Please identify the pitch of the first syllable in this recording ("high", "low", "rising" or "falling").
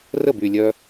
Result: falling